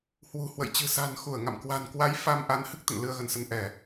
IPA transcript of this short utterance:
h w ṳ˨˩ h w ə̰˧˨ j t͡ɕ ɨ̤˨˩ s a̤˨˩ n x u˧˩ ə̯ ŋ a̰˧˨ m k w a̤˨˩ n k w a˨˦ j f a˧ m ʔ a˨˦ n h ɨ˦˥ k̚ t̪ ə̰˧˨ n l ɨ˧ ə̯ ɣ ə˧˩ n s ə˧ n ʔ ɛ˧˩˨

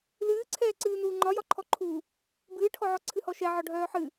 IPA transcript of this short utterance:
l ɨː ǀʰ ɛː ǀ ɨː n uː ŋ͡ǃ ɒ j ɒ ǃʰ ɔ ǃʰ u | b ɨː ʈʰ ɔ ʕ ɔ ǀʰ ɨ h ɔ ʃ ɛ ʕ ɒ ɖʱ œː ħ ɨ

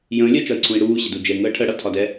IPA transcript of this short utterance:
j ə̃ː lʲ ɜ t͡ʃ ɒ i̯ ǀʰ ũ i̯ ɽ uː ɕ ɪ d u d͡ʒ ɛ ŋ əː ʈʰ ə ɽ ʌ tʰ ɒ d ɛ

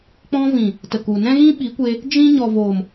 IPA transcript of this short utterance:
k͡p ɔ̃˧ v ĩ˨ | t ə˨ k u˨ n ɛ̃˦ ɣ ĩ˦ ɓ i˨˦ kʷ e˧ | d͡ʒ ĩ˧ ɲ ɔ˨ v o˨ m

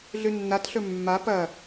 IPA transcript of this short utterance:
ɮ ʉ nː a t ɬ ɵ mː a p ɐ

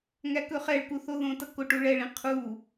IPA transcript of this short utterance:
ŋ æ k ɵ χ ɛ ɭ k u θ o ð õ t ʌ k o ʈ u ɭ ɛ ɭ ĩ qʰ u

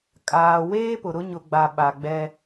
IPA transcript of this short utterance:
kʼ aː˨ w eː˦ p ʊ˨ ɾ ʊ˦ ɲ ʊ˨ ɡ͡b a˨ ɓ a˨ ɡ͡b ɛ˦

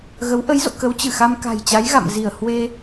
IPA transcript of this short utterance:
ɣ ə˨˦ w ʔ ə˨˦ j z o̰˧˨ k ə˨˦ w t͡ɕ ɨ˧˩ x a˧ m k a̤˨˩ j t͡ɕ a˨˦ j ɣ a̰˧˨ m z i˧˩ ə̯ h w e˧

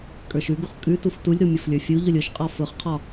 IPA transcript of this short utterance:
kʼ ə˞ ʃ ʉ ɡ u χ kʼ ʉ t u f t u lʲ ɾ u mʲ ʊ f lʲ ə˞ fʲ u ʎ ʊ lʲ ʊ ʃ qʼ ɒ f ʊ χ qʰ ɒ

